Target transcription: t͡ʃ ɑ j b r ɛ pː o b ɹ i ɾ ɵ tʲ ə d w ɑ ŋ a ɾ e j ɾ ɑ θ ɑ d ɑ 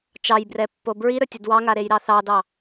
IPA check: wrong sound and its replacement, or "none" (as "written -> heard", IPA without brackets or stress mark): none